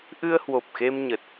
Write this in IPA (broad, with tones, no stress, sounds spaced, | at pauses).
ʔ ɨ˧ ə̯ h w o˨˩ p̚ x e˧ m ɲ ə˨˩ t̚